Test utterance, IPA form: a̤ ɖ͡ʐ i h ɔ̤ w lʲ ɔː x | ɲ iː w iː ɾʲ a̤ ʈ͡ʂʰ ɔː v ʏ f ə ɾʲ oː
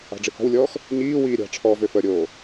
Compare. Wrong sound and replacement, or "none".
none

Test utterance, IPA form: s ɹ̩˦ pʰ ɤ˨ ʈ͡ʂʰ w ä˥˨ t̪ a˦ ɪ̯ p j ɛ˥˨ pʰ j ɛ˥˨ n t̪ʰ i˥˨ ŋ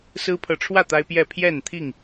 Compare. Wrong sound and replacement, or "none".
none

